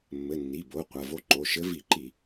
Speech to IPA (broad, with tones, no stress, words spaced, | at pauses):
mːɘ˩˧˩nːi˩˧˩bo˩˧˩ qʷɐ˩˧˩vo˧˥ ǃo˩˧˩ʃɘ˧˥ vi˧˩˧ǃi˧˩˧